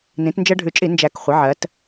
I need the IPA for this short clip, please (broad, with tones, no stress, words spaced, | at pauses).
nĩ˩˧tnd͡ʒɜ˧ɖʱʉ˨˩t͡ʃʼi˧˩˧ nd͡ʒæ˨˩k χʷɪ˩˧ ʕɜ˩˧t